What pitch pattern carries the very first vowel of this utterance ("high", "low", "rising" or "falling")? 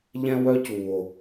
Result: high